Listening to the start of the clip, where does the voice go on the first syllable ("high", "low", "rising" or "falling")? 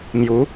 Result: rising